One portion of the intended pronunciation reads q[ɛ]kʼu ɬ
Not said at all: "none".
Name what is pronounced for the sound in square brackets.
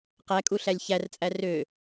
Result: æ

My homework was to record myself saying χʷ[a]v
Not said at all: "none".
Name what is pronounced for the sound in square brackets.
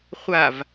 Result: a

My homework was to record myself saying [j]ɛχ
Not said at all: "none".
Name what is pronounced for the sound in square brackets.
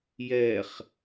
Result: j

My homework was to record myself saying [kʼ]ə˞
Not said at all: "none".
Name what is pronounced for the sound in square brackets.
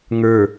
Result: ŋ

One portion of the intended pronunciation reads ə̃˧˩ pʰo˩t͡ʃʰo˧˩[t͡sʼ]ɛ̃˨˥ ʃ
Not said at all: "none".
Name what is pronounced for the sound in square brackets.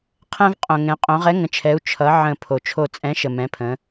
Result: t͡sʼ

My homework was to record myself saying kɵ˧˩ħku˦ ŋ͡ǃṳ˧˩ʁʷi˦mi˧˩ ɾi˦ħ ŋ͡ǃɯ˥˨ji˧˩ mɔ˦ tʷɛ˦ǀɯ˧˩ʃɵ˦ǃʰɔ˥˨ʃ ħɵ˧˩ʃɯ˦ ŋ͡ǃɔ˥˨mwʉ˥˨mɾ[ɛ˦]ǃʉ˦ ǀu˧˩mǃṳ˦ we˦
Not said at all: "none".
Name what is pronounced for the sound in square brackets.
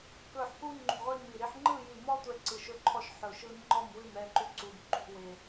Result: ɛ˥˨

